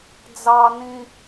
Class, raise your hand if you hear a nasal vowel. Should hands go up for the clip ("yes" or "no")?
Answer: yes